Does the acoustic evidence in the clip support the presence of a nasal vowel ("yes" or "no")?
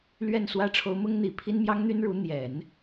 no